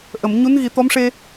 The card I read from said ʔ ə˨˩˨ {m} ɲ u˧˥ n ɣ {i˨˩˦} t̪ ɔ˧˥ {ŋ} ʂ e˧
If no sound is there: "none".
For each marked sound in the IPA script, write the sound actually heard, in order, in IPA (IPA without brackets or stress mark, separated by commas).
m, i˨˩˦, m